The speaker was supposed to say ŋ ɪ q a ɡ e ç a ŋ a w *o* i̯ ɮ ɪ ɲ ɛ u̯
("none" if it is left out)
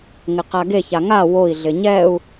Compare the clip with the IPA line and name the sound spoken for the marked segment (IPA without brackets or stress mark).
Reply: o